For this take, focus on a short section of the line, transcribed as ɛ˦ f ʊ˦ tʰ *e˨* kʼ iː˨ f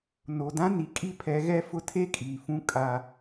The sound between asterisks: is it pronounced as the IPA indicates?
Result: no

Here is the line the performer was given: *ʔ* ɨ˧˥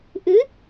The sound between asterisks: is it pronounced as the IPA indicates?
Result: yes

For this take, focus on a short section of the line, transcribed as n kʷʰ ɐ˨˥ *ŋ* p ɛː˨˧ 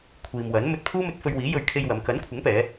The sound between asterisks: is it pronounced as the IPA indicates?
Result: yes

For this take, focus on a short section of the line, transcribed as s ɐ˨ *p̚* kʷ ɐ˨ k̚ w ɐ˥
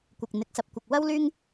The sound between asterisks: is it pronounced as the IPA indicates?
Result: yes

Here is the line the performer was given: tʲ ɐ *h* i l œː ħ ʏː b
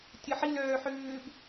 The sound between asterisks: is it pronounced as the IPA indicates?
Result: no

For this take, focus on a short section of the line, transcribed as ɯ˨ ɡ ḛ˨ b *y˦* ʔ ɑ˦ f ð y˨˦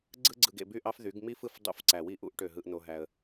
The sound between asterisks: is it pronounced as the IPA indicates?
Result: yes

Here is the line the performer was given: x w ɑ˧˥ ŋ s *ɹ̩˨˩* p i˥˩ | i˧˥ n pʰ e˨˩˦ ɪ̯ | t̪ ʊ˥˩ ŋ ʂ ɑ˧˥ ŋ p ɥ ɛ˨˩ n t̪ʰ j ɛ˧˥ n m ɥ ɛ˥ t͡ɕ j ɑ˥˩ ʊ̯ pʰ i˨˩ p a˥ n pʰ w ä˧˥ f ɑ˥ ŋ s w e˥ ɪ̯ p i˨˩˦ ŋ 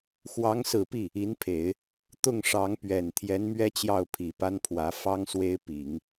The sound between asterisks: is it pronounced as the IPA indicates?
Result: yes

